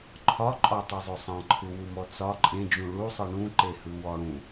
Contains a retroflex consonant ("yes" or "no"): yes